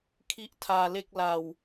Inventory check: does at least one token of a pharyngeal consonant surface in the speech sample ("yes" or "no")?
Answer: no